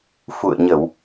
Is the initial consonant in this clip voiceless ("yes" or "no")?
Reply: yes